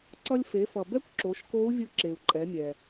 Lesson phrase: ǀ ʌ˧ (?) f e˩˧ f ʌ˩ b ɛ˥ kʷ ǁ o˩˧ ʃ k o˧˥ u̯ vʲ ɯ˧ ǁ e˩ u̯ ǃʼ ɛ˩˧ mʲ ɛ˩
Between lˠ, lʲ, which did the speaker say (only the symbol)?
lʲ